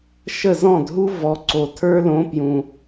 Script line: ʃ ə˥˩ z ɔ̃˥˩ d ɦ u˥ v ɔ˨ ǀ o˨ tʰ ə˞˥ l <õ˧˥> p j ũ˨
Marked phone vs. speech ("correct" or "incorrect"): correct